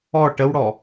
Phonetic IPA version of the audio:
ɔ ʈ ə w ɽ ɔ

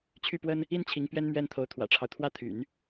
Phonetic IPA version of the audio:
t͡ɕʰ y˥˩ p w ə˥ n | i˥˩ n t͡ɕʰ i˧˥ ŋ p ɥ ɛ˥ n m ɥ ɛ˥˩ n t̪ʰ o˧˥ ʊ̯ t̪ʰ w ä̰˨˩ ʈ͡ʂʰ ɑ˦ ʊ̯ t̪ʰ w ä˥˩ t̪ʰ y̰˨˩˦ n

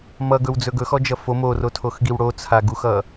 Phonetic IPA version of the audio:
m ʌ ɡ ɵ w d͡z ɵ ɡ ɵ x ɔ d͡ʒ ʌ f o m o r o tʰ o x ɡ i w ɽ o t͡sʰ a ɡ u x ʌ

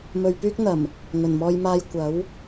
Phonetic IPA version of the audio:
m ɵ˨ ɥ p yː˥ k̚ n̪ ɐ˨˩ m | ŋ ɵ˨˩ n m ɔː˧ j m aː˧ j kʷ ɐ˨˥ w

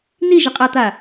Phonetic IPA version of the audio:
n i ʒ ə qʼ a t̪ a

